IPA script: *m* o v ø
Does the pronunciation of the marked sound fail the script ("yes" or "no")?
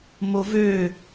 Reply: no